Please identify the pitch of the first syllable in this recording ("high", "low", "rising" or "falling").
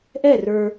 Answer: falling